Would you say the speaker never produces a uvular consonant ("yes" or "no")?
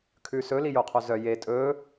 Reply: no